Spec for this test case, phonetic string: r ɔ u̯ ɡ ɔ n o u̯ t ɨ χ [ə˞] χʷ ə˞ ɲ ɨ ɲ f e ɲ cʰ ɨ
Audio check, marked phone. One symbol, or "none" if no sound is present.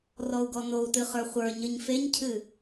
ə˞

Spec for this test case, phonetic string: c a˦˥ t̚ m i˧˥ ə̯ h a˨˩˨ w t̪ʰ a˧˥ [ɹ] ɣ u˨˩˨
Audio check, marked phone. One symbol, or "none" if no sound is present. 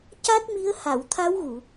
w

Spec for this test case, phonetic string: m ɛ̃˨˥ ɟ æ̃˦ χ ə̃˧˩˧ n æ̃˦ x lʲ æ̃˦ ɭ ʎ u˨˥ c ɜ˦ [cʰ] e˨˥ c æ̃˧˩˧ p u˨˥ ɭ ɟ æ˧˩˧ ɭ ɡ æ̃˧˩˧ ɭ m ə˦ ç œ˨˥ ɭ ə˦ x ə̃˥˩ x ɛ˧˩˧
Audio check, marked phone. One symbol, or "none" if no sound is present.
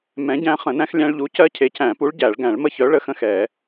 cʰ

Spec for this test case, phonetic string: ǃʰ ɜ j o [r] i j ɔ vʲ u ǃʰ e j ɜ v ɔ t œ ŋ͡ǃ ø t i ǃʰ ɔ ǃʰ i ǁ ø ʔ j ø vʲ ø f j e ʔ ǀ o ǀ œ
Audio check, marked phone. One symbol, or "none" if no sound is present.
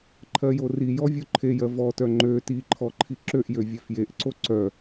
r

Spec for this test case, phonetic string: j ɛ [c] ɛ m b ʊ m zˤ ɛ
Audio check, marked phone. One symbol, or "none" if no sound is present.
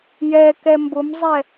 k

